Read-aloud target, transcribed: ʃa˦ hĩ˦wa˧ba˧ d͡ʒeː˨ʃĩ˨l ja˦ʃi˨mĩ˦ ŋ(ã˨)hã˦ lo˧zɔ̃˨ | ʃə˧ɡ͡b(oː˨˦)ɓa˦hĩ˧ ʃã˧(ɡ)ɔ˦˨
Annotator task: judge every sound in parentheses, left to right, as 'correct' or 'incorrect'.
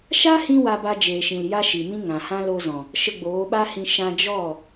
correct, correct, incorrect: d͡ʒ

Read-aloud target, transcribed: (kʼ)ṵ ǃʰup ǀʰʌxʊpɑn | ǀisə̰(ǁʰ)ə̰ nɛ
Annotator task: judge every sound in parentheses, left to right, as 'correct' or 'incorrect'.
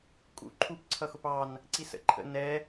correct, incorrect: ǃʰ

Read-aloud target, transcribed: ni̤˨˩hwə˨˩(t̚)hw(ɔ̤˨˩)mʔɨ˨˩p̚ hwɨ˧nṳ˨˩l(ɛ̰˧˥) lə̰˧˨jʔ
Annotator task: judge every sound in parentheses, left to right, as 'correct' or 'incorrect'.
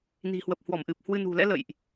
incorrect: p̚, incorrect: ɔ˧˩, correct

